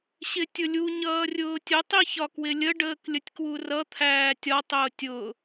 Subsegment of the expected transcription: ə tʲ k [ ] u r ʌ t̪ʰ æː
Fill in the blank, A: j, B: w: B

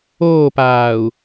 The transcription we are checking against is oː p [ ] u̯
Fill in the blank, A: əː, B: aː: B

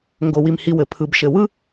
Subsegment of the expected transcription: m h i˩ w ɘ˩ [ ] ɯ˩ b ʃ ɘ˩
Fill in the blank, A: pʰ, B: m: A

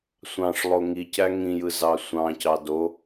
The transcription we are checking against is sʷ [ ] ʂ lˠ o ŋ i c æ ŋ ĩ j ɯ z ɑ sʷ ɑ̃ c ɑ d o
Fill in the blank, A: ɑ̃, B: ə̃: A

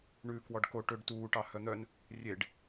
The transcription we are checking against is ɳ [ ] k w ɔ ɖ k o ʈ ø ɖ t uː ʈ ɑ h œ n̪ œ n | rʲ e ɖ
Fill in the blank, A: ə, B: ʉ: B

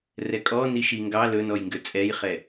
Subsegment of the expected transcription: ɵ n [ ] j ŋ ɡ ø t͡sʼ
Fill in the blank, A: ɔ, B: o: A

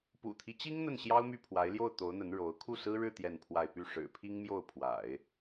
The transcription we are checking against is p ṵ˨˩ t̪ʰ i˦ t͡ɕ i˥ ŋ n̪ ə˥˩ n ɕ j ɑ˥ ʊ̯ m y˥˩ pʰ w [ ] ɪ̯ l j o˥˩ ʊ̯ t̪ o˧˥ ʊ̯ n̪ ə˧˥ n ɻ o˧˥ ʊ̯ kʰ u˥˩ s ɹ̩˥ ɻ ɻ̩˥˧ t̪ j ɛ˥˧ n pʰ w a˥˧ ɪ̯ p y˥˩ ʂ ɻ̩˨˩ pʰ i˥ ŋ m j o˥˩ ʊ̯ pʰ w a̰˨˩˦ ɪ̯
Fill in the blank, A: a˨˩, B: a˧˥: B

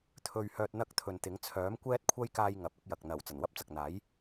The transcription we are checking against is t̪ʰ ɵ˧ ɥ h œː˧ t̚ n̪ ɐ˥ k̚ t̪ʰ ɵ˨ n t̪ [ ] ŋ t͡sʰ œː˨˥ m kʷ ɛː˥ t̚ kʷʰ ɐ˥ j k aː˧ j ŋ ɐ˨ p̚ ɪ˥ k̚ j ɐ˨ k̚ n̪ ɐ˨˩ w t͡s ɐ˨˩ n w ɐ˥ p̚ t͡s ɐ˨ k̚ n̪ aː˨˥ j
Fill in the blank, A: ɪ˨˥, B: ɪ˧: A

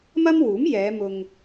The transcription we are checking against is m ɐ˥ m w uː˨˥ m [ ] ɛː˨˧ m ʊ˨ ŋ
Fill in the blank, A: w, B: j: B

